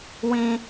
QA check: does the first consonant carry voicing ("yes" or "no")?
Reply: yes